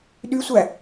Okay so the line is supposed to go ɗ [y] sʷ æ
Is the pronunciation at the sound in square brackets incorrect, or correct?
correct